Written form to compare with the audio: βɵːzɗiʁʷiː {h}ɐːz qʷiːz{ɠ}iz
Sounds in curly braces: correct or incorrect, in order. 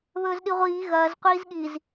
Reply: incorrect, correct

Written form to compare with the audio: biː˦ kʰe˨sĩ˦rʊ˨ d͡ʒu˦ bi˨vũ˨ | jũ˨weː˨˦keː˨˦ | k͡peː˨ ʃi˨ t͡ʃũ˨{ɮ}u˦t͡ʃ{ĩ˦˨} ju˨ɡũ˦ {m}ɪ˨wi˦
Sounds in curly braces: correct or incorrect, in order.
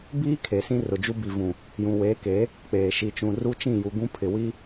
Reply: incorrect, correct, incorrect

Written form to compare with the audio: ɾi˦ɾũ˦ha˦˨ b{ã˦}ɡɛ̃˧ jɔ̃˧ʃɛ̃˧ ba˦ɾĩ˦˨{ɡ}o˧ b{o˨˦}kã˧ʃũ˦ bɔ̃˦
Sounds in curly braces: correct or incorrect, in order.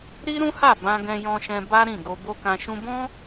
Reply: incorrect, correct, incorrect

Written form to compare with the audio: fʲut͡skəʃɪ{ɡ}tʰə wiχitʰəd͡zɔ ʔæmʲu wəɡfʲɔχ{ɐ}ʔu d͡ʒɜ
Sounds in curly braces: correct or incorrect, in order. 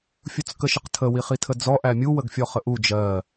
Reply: incorrect, incorrect

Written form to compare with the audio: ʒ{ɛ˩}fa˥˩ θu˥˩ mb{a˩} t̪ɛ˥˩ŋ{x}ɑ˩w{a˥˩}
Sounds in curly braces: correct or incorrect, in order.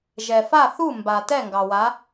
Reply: correct, correct, incorrect, incorrect

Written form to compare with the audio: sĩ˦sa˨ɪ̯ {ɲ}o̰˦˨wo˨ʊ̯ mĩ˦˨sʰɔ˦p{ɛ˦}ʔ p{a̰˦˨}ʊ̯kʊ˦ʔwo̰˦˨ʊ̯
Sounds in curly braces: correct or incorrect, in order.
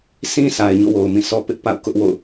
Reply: correct, incorrect, correct

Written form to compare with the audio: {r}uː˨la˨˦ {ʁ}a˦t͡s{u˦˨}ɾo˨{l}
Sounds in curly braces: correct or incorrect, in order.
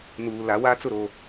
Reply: incorrect, incorrect, incorrect, incorrect

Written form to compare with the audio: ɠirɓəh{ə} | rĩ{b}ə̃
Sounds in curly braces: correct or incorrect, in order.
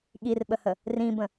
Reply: correct, correct

